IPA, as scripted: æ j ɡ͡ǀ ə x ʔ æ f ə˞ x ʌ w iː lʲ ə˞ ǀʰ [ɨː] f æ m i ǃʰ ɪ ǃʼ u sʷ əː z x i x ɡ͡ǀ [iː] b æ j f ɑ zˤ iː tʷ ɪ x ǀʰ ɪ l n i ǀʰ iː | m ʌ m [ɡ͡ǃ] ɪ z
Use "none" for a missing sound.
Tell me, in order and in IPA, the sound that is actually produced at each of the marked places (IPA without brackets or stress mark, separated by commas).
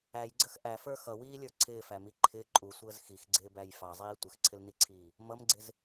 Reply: ɪː, ɪː, ɡ͡ǀ